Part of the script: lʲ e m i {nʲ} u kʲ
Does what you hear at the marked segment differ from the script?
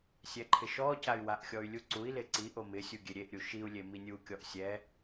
no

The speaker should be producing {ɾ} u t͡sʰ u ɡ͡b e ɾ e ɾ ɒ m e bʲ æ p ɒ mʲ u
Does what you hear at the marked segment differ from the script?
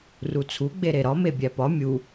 yes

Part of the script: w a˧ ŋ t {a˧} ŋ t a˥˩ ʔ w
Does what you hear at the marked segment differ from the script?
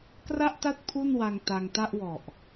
no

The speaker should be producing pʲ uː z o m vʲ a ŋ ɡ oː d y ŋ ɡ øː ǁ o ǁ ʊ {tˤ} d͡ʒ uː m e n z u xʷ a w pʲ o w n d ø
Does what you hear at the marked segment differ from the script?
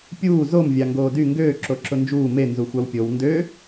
yes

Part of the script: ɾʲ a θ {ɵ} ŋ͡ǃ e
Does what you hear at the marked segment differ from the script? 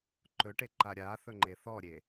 no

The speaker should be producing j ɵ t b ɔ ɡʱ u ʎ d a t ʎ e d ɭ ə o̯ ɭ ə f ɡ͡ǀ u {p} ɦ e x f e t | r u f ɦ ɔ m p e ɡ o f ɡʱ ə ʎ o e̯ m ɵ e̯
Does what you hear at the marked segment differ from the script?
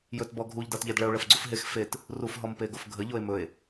yes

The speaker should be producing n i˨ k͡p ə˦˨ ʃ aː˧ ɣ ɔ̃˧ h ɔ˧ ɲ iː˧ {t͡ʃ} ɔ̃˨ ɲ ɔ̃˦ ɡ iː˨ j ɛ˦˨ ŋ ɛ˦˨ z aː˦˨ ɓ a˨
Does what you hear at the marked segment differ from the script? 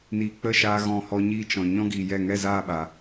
no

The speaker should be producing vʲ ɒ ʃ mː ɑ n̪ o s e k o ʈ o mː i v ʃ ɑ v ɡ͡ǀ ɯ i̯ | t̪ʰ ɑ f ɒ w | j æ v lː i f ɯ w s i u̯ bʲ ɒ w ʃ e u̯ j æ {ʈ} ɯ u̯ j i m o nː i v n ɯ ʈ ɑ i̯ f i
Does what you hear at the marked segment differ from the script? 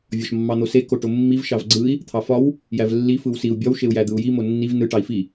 yes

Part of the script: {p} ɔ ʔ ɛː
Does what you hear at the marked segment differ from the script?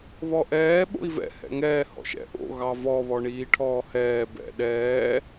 yes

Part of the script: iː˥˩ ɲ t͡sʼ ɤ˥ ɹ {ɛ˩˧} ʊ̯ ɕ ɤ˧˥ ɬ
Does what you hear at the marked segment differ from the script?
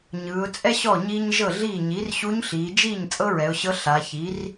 no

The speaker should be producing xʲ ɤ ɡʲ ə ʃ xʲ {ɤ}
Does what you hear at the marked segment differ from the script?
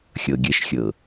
no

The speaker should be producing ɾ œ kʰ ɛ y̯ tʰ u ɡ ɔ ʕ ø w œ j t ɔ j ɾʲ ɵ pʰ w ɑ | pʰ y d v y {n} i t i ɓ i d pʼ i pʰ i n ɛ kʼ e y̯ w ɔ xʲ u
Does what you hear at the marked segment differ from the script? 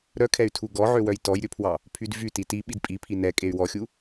yes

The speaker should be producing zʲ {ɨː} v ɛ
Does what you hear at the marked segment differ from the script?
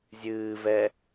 no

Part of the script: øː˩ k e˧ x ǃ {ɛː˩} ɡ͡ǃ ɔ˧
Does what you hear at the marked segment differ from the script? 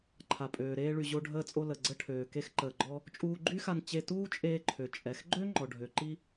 yes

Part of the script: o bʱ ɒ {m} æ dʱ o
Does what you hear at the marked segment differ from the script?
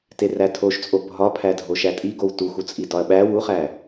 yes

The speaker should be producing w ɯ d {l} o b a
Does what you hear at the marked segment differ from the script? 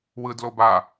no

